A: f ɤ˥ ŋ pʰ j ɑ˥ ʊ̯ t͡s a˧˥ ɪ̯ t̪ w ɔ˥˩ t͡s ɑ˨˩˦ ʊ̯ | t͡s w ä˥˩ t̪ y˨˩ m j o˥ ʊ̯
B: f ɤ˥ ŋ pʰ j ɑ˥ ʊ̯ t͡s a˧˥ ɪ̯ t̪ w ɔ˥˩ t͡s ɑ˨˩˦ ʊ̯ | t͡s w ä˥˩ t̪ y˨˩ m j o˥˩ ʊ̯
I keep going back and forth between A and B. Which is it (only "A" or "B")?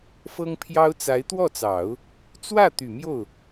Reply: B